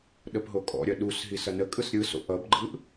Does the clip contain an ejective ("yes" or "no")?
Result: yes